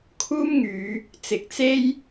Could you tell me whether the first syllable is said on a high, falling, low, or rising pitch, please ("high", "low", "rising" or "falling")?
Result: high